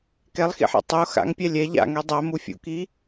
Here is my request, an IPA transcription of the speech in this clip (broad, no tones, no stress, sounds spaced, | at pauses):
k ɛ lˠ x ḭ ħ a̰ tˤ o x a̰ ŋ pʲ æ lʲ ɛ ʎ a̰ ŋ ɛ dˤ æ m u fʲ ṵ k i